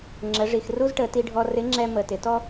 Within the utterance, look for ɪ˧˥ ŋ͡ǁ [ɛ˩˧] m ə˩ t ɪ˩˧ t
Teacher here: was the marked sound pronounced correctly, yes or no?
no